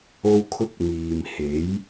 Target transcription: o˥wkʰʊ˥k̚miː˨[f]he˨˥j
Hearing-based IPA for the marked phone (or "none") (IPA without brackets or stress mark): m